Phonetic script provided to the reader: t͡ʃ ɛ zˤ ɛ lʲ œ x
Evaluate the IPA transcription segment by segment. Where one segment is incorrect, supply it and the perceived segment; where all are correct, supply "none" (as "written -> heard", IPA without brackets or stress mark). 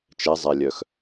none